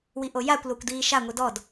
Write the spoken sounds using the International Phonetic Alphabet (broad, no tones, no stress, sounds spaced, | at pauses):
w i ʔ o j a kʷ l o kʷ d iː ʃ a ŋʷ i d ɔ d